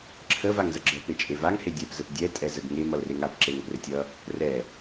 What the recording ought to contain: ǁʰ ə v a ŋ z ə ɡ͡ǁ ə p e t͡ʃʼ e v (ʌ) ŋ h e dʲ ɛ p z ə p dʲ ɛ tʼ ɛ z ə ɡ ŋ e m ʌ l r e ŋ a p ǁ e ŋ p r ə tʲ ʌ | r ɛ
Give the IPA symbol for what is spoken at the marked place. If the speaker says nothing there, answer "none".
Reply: a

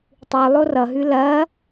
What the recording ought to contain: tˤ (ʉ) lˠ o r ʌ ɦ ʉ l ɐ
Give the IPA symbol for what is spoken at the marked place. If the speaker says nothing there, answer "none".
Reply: ʉ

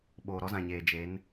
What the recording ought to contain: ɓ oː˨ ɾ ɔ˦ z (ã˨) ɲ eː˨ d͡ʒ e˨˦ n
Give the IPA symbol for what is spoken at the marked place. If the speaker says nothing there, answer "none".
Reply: ã˨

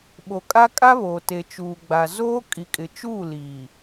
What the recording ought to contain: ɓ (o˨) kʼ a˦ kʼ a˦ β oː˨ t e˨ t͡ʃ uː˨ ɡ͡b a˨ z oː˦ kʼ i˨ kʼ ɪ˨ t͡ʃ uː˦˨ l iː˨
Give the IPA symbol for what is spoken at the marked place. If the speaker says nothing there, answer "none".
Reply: o˨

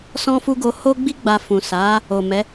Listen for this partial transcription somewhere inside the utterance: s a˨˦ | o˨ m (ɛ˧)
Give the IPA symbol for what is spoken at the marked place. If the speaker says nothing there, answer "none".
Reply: ɛ˨˦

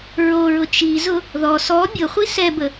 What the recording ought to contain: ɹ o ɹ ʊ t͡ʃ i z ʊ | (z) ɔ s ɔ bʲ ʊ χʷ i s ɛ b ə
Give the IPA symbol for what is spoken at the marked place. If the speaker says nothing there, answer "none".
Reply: ð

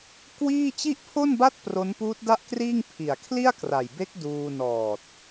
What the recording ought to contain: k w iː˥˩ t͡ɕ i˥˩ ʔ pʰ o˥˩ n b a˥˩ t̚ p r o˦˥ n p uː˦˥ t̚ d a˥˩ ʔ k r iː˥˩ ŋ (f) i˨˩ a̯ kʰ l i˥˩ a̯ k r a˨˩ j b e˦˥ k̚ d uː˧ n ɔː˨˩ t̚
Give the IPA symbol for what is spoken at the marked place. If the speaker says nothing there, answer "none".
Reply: pʰ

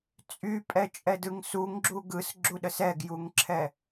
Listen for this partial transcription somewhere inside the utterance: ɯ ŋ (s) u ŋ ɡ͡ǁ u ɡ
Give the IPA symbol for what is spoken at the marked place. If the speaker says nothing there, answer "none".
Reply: s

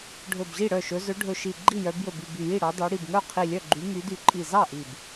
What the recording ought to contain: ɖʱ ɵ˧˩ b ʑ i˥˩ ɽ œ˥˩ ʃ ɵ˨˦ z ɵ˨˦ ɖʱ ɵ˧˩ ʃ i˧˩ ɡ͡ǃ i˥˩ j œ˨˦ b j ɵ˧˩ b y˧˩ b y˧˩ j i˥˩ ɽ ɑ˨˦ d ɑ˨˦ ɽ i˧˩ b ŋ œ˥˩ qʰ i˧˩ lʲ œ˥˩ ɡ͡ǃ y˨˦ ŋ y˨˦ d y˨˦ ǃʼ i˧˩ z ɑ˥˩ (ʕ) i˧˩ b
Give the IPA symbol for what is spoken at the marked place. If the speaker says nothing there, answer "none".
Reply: ʔ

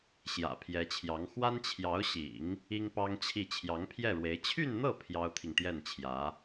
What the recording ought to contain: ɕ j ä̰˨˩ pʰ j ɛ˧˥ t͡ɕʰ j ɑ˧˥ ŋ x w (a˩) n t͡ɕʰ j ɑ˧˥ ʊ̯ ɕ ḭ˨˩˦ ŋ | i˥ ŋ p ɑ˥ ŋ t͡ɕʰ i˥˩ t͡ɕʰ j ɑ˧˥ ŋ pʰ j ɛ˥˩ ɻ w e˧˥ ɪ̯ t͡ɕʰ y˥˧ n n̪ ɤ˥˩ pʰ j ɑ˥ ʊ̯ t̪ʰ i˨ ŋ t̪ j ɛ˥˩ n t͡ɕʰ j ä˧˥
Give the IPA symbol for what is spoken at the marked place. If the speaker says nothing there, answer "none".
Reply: a˥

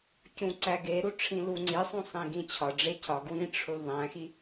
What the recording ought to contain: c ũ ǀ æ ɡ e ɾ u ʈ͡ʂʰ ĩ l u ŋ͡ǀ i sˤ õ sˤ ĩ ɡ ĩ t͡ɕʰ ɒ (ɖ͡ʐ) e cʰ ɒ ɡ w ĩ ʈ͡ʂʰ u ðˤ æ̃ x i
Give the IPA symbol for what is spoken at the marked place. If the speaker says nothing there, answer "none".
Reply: ɖ͡ʐ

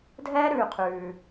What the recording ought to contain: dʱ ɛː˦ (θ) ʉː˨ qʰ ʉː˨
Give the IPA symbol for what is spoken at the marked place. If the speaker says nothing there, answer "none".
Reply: ɾ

